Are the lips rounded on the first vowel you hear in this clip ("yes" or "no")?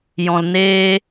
yes